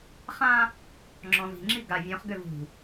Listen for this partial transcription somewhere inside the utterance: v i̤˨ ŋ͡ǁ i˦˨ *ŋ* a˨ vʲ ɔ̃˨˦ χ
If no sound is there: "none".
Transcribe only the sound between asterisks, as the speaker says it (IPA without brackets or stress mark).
ɡ